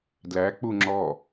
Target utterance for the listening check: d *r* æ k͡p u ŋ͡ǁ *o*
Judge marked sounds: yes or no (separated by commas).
no, no